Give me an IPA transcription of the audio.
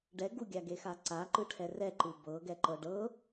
ɖɛ ɡuɡʲaɡexa ǀaǃɯʈʰɛ rɛǃɯ bɤɡɛǃɤ ɖɤ

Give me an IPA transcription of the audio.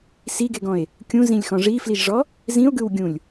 siɡeɡɔ̃e̯ | kʲũzĩlʲxɔ̃ ʐifliʒʐɔ | zĩo̯ɡɯwɡʲũlʲ

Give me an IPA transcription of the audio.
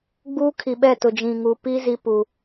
ɡ͡buː˦kʰi˨ɓɛ˦˨tʊ˨ d͡ʒĩ˨ŋu˨pi˦ zi˦puː˨

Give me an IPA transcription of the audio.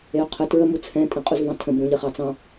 eʊ̯qʰə tɹə mut͡sʰɛ̃ tʼẽqʼuzvɑ̃tʰə̃ bũʎəχɑt͡sɑ̃

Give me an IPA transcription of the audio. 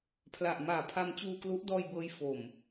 pʰla˨˩ʔmaː˨˩pʰa˧m t͡ɕuː˧klu˦˥ʔdɔː˧jbɤː˦˥j fo˨˩m

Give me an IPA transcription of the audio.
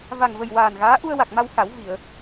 va˨˩ŋvə˨˩j waː˨˩nɣaː˧˥ ʔu˧ə̯wa˨˩k̚ma˧w xa˨˩˦wvi˨˩˨ə̯

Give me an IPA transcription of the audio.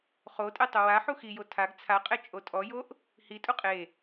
χotʼe tˤʊwa ħuxijo tʰaɡ t͡sʰaqʼe t͡ʃʼotʼɔjoʔ | hi tʼuqʼe

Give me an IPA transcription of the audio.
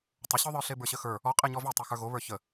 tˤəɕøðˤə˞ɬe bə˞ɕəxə˞ | ɔqʼeɲɔ vetˤø xə˞ɣo βə˞çə

